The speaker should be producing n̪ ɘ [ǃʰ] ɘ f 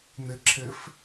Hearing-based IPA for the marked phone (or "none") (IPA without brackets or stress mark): ǁʰ